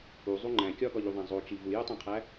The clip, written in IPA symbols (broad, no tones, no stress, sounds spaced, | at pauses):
u zˤ u ŋ͡ǃ æ̃ kʲ ɒ ɡ ɒ ʎ u ðˤ æ̃ zˤ o t͡ʃ i v u j u tˤ æ̃ qʰ æ